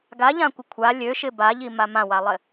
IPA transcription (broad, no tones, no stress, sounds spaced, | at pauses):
ɡ a ʎ ã kʷ ɪ kʷʰ a lʲ ø ʃ ɪ b a ʎ i m a m ã w a lˠ ɪ